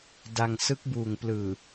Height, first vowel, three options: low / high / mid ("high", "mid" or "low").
low